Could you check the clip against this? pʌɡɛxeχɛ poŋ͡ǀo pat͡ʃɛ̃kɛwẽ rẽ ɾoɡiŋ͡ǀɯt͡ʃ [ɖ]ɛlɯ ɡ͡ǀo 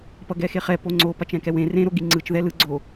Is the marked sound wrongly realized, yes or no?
yes